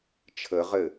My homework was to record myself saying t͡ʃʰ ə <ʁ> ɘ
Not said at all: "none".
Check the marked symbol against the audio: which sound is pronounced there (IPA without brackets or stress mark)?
ʁ